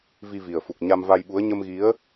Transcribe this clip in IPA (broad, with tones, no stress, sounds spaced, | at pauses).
v i˧ v i˨˩ ə̯ f u˨˩ k̚ ɲ a˧ m v a˧ j ɓ u˨˦ ə̯ ɲ ə˧ m ɣ i˨˦ ə̯